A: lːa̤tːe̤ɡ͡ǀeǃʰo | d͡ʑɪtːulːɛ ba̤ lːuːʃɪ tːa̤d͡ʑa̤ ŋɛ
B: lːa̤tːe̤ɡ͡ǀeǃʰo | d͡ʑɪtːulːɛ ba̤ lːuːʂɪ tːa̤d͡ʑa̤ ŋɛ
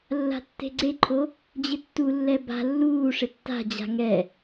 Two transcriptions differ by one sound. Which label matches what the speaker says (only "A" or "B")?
B